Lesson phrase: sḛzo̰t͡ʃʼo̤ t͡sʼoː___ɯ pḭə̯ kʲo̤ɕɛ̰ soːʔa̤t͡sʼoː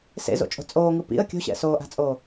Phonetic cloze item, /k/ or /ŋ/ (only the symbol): ŋ